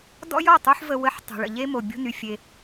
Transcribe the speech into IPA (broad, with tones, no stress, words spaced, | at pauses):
dɔ̰˦jɔ˦˨tˤu˦ħ və˦ wə˦˨ħ tˤṳ˨ɭə̰˨ ʎe˦mo˨bʲo̤˦ny˨ fʲe˦